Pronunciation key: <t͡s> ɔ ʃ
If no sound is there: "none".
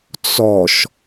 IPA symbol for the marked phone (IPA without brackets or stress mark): t͡s